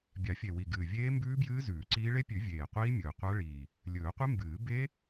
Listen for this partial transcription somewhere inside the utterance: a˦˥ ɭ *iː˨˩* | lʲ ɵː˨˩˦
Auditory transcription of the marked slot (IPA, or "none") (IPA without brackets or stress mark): iː˨˩